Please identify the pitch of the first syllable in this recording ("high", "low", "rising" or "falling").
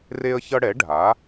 high